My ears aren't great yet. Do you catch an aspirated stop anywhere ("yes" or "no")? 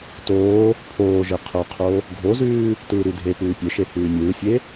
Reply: yes